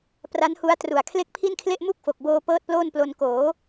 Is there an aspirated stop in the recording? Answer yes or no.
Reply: yes